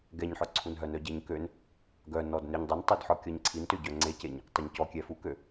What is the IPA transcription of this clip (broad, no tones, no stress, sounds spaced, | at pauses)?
ɡ ɛ ɲ ħ œ ǀʰ u n ɦ œ n œ ɟ e ɲ k ø n | ɡ œ n ɔ d n ø ɲ dˤ u n tˤ ø d ħ ɔ kʲ ɔ ɲ ǀʰ i n t ø ɟ œ ŋ͡ǀ e c e ɲ | tˤ ø ɲ c ɔ kʲ ɛ f u k ø